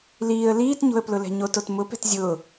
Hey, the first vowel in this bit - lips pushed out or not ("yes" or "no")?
no